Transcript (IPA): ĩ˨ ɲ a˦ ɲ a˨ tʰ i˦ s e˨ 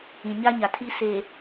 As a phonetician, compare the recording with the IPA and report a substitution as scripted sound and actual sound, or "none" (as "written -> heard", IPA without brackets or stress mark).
none